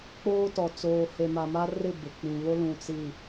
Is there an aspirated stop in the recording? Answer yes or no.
no